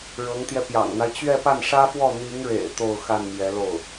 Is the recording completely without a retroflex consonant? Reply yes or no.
no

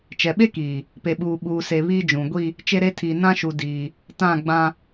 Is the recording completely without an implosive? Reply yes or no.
no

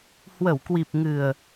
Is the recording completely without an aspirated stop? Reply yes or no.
yes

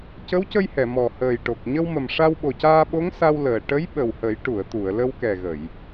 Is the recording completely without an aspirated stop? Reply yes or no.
yes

